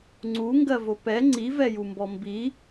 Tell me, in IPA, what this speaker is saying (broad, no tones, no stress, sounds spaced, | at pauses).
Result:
ŋ͡ǀ u ŋ ɡ ɜ v o p ɛ ŋ͡ǀ i v ɛ j u m b ɔ m b i